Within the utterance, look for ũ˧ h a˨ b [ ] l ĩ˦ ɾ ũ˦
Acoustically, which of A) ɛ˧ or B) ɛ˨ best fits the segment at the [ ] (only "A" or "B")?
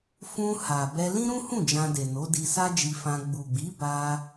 A